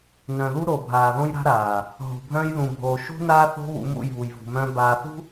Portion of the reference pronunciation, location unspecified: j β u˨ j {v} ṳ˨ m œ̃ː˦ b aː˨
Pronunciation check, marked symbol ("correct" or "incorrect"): correct